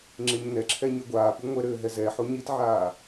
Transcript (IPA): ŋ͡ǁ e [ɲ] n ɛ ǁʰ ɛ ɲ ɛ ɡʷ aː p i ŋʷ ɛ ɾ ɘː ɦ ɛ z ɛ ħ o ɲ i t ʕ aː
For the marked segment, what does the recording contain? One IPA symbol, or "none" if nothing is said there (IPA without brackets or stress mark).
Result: ɲ